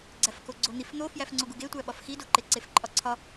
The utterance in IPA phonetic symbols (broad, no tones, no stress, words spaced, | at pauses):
ɡ͡ǀæfkoɡ͡ǀon̪if n̪ofjæf ŋ͡ǀoɡuɡetʷæ ɓɒfxido ǃeǀefǃʼɒǀʰɒ